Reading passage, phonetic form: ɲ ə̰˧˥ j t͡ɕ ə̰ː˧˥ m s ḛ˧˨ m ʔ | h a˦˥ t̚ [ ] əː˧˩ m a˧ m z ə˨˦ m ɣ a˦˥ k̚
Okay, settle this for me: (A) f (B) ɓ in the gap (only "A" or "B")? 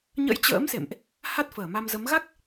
A